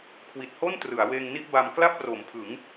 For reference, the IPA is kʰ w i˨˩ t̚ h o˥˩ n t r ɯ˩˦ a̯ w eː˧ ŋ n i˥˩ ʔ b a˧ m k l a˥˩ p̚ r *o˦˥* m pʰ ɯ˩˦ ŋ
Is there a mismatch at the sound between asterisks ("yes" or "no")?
yes